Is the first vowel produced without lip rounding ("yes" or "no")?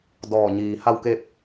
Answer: no